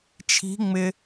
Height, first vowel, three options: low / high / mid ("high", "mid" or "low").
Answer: high